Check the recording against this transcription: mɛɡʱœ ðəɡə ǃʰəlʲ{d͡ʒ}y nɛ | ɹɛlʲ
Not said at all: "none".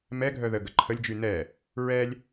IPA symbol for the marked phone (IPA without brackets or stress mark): d͡ʒ